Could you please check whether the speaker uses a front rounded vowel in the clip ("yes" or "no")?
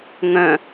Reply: yes